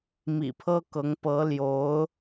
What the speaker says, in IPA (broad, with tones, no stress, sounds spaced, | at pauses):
m ḭ˨˩ pʰ ɤ˥ k ɤ˧˥ ŋ p ɤ˧˥ l j o˧˥ ʊ̯